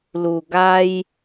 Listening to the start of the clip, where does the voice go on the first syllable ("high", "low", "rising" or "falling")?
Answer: low